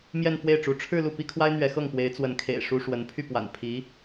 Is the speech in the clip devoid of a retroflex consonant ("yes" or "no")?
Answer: no